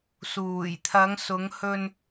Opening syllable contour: low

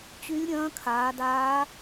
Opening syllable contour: rising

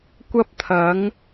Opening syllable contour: high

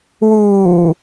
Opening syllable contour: low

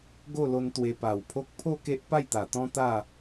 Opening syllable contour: falling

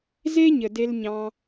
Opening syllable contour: high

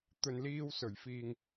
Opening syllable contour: low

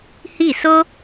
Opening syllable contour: falling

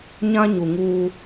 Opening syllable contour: high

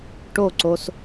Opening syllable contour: falling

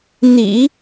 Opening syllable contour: low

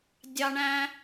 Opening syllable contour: high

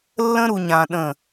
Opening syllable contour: high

